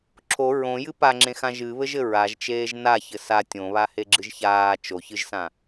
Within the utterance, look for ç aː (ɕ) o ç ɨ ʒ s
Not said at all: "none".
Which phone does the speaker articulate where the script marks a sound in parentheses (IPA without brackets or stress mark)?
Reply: t͡ʃ